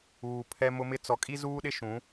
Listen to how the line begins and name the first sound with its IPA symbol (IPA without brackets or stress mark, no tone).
uː